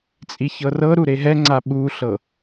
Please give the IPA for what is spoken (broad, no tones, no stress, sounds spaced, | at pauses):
t͡sʼ i ç ɤ r ɤ ɾ u ɾ e ɦ ɛ ŋ͡ǀ a ɓ u ɬ ɤ